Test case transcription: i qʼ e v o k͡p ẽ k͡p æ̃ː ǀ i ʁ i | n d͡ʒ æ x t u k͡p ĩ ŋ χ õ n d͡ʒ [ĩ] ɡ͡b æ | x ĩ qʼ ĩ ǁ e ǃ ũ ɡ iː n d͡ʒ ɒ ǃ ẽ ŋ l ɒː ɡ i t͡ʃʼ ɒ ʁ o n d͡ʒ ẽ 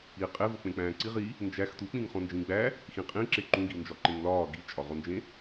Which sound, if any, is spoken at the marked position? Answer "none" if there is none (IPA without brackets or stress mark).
ĩ